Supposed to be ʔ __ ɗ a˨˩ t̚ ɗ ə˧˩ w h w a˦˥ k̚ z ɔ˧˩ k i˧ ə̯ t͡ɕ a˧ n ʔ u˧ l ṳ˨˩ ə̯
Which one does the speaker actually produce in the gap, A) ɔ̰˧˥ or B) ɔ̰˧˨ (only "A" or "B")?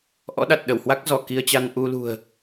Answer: A